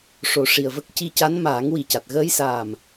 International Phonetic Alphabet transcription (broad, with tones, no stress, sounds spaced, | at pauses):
ʂ o˨˩˨ ʂ i˨˩ ə̯ v ə˦˥ k̚ c i˧ c a˧˥ n m aː˨˩˦ ŋ w i˨˩ c a˨˩ t̚ ɣ əː˧ j s aː˨˩ m